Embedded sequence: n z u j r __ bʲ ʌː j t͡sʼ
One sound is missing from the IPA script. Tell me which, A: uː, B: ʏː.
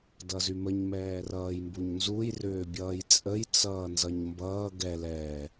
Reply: B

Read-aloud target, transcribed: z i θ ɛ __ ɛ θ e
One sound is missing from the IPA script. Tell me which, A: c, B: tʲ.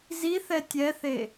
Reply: B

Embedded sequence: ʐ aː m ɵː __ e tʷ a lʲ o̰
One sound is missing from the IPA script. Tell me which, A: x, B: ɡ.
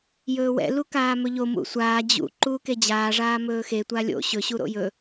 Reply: A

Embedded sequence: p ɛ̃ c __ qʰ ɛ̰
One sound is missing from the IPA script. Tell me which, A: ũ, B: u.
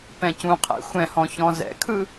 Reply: A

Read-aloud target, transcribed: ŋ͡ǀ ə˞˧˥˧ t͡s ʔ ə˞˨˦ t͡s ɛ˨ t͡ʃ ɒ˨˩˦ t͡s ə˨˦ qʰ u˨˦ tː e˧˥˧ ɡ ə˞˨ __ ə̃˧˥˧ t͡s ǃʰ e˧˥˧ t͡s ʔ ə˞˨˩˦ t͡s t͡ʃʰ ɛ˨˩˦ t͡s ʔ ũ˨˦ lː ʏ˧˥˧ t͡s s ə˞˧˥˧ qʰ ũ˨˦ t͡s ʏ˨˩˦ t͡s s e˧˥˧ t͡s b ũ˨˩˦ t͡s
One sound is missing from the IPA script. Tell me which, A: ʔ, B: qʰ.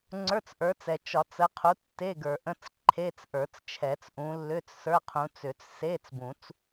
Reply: A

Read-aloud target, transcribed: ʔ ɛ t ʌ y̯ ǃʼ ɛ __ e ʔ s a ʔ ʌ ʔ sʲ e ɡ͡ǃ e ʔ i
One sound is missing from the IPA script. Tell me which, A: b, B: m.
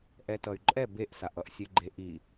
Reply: A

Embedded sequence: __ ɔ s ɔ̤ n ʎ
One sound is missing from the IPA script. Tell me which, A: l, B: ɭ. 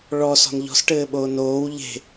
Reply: B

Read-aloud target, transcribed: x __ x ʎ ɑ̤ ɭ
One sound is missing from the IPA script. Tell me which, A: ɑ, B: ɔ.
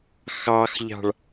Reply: A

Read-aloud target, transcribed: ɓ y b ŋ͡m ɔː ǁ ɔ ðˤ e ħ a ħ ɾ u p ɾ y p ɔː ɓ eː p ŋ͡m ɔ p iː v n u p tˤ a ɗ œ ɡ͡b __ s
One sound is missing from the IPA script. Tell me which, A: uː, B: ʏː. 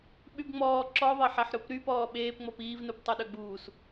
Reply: A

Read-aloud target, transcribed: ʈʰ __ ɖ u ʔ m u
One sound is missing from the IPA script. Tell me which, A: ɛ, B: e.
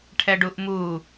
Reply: A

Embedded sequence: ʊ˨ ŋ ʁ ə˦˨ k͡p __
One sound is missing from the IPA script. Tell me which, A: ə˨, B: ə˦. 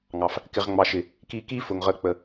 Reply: A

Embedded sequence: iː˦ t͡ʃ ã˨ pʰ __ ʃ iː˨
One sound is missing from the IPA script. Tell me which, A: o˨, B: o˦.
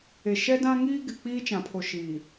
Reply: A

